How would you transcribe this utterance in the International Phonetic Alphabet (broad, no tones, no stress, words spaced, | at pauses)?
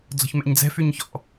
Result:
d͡zɔ̤çmɛ̰ɲd͡zɛ̤ fyɲçɔ̰